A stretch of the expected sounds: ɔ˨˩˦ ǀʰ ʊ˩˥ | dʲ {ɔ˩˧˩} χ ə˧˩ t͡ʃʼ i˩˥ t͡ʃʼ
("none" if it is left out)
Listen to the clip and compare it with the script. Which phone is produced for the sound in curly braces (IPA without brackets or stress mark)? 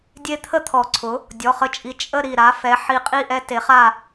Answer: ɔ˩˧˩